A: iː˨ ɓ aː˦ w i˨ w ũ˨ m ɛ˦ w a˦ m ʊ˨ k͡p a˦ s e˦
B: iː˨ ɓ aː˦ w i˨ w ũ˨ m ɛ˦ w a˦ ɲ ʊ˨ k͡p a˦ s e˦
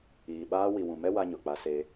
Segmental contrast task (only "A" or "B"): B